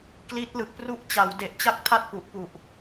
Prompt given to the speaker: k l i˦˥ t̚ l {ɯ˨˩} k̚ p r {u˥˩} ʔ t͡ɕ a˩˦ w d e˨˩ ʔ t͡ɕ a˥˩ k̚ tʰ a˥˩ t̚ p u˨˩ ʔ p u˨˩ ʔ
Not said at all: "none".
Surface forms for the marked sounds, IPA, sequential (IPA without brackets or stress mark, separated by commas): ɯ˨˩, u˥˩